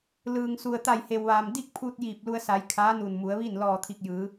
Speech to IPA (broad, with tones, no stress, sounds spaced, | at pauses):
l ɯː˩ ŋ s u˩ ə̯ t̪ a˧˩ j h e˩ w ʋ aː˩ m d i˥˨ k̚ pʰ uː˧ t̚ j iː˧˩ p̚ l u˧ ə̯ s a˩˧ j kʰ aː˧˥ n u˧˩ n m u˩˧ ə̯ ʋ i˥˨ n l ɔː˧˩ t̪ʰ i˧˩ k̚ j ɯː˩˧